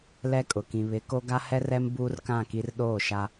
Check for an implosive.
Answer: present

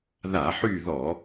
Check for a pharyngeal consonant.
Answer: present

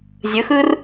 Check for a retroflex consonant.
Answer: absent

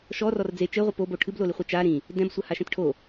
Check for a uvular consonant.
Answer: present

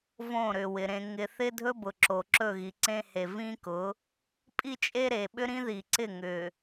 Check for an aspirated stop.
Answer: absent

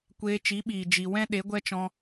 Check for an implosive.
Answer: present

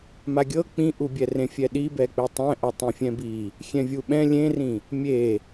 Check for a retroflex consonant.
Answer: absent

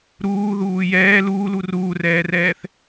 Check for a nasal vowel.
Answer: absent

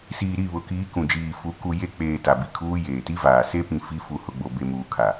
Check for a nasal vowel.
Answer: present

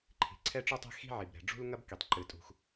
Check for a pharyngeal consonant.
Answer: present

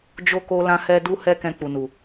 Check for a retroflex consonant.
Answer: absent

